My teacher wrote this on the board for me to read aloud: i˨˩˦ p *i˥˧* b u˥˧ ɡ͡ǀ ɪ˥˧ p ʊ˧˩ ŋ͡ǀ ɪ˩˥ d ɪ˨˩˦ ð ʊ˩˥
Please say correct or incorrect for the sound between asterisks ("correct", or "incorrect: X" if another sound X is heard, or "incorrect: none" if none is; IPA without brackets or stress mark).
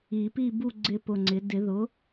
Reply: correct